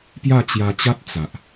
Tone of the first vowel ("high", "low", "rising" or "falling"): falling